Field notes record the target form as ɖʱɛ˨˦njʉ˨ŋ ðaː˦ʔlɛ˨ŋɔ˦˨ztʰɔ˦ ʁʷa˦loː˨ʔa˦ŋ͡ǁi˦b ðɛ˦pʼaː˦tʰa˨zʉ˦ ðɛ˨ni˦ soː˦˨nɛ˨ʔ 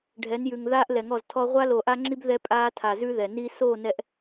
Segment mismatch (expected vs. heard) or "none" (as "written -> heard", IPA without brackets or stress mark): none